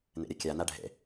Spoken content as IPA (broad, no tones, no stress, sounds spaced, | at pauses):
n ḛ ɾʲ ə kʲ a n a ɖʱ ḛ